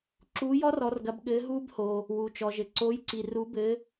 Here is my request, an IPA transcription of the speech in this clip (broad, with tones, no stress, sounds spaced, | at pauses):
ǁ uː˨˥ j ɔ˦˥ r ɔ˨˥ r ɡ ɐ˨˥ b ɠ ɘː˨˥ ɦ uː˦˥ b h oː˩ | w u˩ t͡ʃ ɔ˩ ʒ ɘ˩ ǀ oː˨˥ j ǀ i˩ r u˨˥ b ɘː˨˥